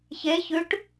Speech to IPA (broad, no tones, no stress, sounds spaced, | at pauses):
ç e ç ʉ ʈ